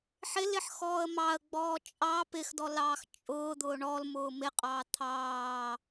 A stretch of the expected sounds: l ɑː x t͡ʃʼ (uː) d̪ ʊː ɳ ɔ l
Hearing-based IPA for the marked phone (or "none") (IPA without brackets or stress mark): ʊː